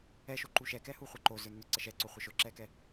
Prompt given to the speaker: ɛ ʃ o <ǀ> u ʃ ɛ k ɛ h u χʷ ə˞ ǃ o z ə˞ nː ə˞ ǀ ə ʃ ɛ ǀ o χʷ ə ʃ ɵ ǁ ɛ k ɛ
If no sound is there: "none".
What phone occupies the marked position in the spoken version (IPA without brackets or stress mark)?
ǃ